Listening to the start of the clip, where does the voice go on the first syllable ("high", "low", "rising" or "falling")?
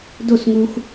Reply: falling